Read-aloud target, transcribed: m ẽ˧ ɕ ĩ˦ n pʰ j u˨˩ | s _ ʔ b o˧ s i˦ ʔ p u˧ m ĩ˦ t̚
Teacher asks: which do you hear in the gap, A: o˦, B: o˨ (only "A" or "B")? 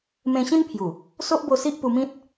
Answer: A